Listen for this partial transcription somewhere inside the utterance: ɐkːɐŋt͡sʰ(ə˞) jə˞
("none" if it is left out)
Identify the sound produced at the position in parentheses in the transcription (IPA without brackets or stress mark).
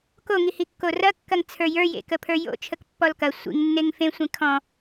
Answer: ə˞